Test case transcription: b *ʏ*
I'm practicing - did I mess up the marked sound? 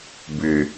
no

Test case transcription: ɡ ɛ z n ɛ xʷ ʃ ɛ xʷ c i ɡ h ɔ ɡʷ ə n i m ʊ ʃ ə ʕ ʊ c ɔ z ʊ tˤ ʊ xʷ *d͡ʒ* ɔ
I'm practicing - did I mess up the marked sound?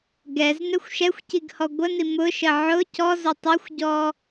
yes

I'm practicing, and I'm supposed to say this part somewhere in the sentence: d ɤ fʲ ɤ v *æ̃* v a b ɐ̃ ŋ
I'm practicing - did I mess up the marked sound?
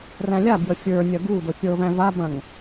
no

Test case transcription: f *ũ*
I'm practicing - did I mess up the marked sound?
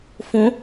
no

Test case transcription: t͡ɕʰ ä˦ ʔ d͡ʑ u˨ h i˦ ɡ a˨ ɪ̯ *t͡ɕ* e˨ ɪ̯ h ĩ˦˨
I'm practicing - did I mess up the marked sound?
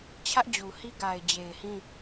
yes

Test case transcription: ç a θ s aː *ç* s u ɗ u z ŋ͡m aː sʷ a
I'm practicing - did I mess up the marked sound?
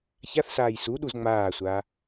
yes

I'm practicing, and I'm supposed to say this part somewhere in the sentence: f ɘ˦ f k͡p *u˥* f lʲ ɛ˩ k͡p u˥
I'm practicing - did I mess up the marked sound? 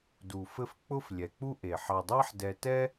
yes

